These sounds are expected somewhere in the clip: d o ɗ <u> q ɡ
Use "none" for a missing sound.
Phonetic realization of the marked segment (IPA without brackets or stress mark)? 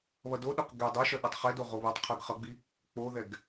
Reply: o